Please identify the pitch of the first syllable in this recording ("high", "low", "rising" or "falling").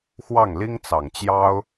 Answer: falling